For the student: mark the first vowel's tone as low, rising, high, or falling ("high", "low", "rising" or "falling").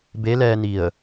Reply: rising